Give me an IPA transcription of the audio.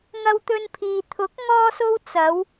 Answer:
ŋɐ˧wt̪ɵ˧npʰiː˨ t̪ʰʊ˨˥k̚ ŋɔː˥so˥w t͡sɐ˨˧w

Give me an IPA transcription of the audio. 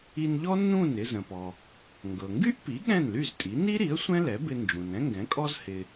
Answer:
i˧nʎɔ˥ nũ˥˩n ɪ˧zə̃˩pɔ˩ | ŋɡɤ˩ŋɡy˥ʔpi˩˥ ɠɛ̃˥˩nly˥˩ztʼi˩˥ ni˥ɾi˩˥ə̯ sʷɛ̃˥lɛ˩˥bɪ˧nd͡ʒũ˩n ɛ̃˥ŋɡɛ̃˩˥kʼɔ˥z hɪ˧

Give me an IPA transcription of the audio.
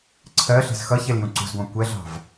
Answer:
ǀʰɜɬe̤z xʌçel jũǀṳzɡʷɑ̃ kʷɛɮɑ̤v

